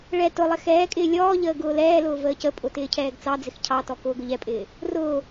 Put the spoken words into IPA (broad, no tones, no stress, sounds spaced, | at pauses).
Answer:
ɭ ɛ t ʊ lˠ ɪ x ɛː kʼ ɪː lʲ ɔː ʎ əː ɡ ʊː l ɛː l ʊː v əː c ə pʼ ʊ t ɪː cʰ ɛː ɡ t͡s ɑ d͡z ɪ x cʰ ɑ t ɔ k ʊː ɡ ʊ ʎ ɛ pʼ ɪː | r ʊː